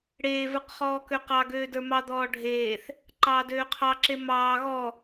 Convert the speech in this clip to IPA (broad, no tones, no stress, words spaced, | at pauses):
ɽeːvə˞q χɔːkøqɑɡøː də˞mɑd̪ɔː ɖʱeːθ | ǃɑːdøːqʰɑǁe mɑː ɣɔ